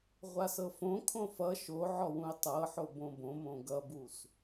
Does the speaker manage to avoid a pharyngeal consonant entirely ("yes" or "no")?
no